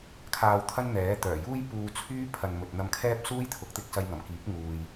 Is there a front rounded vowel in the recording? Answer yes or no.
yes